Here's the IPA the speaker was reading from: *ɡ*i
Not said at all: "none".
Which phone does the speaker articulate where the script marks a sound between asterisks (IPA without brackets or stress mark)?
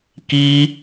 k